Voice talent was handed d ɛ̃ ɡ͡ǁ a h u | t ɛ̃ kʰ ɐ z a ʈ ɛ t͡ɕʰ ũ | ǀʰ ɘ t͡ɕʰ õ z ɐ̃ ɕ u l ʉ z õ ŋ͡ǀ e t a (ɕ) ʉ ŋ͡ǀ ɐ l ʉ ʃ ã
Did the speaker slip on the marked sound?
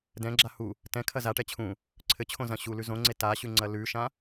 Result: no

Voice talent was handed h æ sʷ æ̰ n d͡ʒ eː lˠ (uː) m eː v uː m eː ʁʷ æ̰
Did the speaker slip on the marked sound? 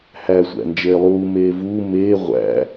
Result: no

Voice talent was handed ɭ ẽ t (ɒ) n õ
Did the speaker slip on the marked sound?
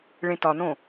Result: no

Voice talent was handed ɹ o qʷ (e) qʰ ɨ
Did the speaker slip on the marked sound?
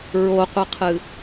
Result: yes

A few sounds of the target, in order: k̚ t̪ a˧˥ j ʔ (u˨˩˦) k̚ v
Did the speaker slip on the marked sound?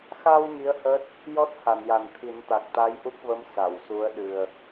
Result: yes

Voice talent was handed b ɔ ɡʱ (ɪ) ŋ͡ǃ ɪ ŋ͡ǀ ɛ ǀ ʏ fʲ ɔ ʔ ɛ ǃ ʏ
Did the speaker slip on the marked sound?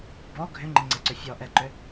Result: yes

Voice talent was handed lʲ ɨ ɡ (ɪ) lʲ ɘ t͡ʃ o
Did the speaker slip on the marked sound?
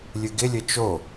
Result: no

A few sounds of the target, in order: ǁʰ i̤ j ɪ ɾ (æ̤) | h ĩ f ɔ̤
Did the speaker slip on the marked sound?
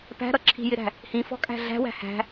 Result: no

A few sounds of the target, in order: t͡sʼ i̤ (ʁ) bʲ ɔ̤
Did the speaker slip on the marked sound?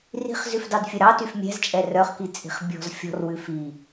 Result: yes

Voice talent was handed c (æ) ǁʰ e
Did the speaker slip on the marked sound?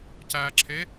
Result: no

